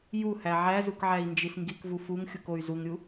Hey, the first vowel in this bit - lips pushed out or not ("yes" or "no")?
yes